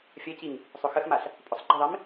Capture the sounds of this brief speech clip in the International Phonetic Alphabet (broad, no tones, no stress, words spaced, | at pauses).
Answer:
fʲɐciŋ | sˤʊxəxmaɬ | pʼʊsˤɡ͡ǃiðˤim